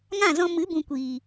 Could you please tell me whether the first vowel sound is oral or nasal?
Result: nasal